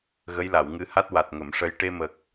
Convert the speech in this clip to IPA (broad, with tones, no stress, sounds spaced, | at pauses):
ɣ ə˧˥ j l a˨˩˨ w ŋ ɨ˧ h a˦˥ t̚ w a˨˩ t̚ ŋ ə˨˩˨ m ʂ ə˧ j ʈ e˧ m ə˨˩ k̚